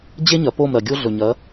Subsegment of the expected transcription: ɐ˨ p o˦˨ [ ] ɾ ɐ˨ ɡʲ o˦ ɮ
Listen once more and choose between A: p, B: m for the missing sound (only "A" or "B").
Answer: B